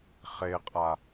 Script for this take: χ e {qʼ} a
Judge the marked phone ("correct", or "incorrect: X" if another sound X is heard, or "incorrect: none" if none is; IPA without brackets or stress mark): correct